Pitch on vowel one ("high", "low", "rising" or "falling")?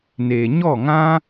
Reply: low